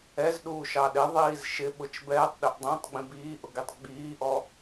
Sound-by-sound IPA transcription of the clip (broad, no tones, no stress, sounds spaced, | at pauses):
ɛ z ɗ uː ʃ ɑ ɗ ɪ ðˤ iː z ʃ ɪ ɓ ʊ t͡ʃ b ɛː tˤ ɗ ɪ ʔ dˤ ĩ tˤ ɡ͡b ĩ b iː ʔ ʊ ɡ i tˤ ɡ͡b iː ʔ ɔ